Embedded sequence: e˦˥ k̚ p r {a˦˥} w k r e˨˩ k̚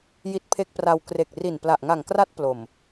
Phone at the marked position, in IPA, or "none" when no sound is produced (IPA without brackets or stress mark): a˧